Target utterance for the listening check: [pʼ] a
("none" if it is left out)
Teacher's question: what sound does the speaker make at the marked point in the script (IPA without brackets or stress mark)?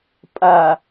pʼ